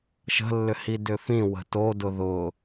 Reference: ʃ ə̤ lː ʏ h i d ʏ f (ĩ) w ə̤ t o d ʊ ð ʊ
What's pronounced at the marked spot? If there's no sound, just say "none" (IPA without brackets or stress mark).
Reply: ĩ